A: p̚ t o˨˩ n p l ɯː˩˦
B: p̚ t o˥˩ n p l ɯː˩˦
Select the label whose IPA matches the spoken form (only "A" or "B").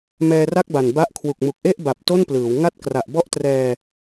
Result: B